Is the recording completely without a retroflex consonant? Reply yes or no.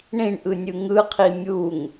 no